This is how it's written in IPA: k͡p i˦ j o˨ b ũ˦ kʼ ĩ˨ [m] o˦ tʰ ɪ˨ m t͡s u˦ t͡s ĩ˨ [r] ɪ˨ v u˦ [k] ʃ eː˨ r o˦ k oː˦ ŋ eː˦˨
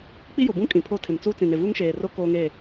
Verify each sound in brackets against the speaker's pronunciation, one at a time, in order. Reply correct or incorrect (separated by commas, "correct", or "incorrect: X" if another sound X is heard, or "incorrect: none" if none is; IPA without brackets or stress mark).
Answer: incorrect: pʰ, incorrect: n, incorrect: ŋ